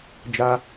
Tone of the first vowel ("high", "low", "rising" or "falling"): high